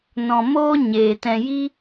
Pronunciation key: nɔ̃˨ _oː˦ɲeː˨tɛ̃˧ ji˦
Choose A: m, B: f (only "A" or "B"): A